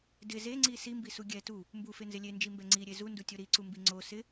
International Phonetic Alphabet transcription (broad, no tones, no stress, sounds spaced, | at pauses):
d ɪ z e ŋ͡ǀ i s i m b i s u ɡʲ ɛ t u | m b u f e n z ɪ lʲ e n d͡ʒ i m b ɛ ŋ͡ǀ i ɾʲ e z u n d u tʲ o ɾ i ǀ u m b i ŋ͡ǀ o s ɪ